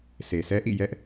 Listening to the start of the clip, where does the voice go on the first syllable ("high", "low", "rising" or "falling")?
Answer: low